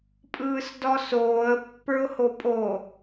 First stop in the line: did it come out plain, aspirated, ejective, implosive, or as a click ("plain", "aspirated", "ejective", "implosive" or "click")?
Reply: ejective